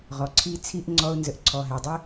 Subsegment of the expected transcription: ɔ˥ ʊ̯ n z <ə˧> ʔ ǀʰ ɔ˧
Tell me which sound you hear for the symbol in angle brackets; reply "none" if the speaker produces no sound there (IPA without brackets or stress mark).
ə˧